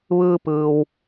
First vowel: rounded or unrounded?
unrounded